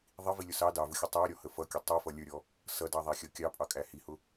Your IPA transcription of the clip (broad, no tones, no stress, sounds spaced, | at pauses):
ðˤ i v i lʲ ʊ s ɑ d ɑ v ʊ xʲ ʌ tˤ æ ɾʲ ɔ h ə f ʌ kʲ ʊ tˤ i f ʌ lʲ ə˞ ɾʲ ɔ | s ʌ d ɑ ðˤ æ xʲ ʌ kʲ ɑ pʼ ɑ kʼ æ h i h ʊ